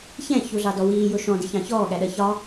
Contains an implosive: yes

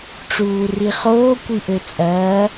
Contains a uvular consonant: yes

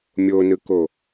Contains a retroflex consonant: no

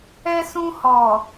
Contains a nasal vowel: yes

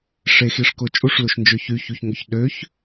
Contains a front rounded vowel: yes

